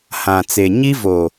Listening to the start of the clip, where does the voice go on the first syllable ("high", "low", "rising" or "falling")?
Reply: low